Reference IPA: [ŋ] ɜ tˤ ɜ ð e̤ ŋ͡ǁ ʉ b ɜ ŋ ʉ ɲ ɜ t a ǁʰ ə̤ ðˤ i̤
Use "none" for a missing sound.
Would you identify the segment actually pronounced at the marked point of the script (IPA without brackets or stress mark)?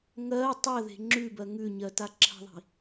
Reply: ŋ